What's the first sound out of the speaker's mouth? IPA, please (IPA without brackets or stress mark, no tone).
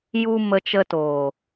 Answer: j